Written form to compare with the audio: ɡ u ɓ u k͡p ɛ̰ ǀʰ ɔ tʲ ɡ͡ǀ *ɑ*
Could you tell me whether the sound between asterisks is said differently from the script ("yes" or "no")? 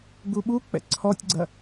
yes